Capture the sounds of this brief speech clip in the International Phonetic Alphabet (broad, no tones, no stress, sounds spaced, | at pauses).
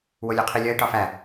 w o lʲ o qʰ i lʲ ɒ ɪ̯ ʈ ɒ f æ